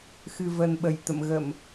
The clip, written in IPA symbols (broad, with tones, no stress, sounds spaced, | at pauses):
x ɨ˨˩ v ə˨˩ n ɓ ə˧˩ j t̪ ə̰˧˨ m ɣ ə˧˩˨ m